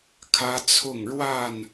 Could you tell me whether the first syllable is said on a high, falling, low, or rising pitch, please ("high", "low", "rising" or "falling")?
high